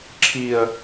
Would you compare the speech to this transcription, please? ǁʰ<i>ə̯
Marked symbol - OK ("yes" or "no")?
yes